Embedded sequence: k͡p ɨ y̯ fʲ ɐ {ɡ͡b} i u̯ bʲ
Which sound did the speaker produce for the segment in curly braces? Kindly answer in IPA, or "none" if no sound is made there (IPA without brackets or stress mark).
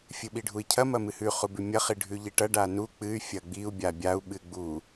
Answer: ɡ͡b